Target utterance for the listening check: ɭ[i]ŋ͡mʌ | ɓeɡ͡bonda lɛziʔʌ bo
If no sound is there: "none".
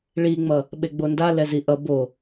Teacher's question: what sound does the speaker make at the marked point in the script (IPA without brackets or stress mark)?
i